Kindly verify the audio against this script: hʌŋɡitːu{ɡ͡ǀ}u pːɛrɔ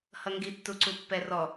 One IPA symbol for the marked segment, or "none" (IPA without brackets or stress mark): ǀ